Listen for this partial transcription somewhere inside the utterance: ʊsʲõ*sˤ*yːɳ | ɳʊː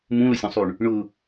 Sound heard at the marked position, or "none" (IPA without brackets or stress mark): sˤ